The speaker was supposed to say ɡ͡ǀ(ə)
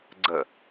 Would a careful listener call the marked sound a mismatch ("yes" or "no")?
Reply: no